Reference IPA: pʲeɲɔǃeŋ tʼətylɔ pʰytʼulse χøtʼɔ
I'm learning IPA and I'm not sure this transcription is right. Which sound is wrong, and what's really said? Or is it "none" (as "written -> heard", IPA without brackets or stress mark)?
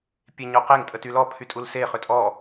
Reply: ǃ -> q